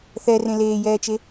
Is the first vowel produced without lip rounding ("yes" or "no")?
yes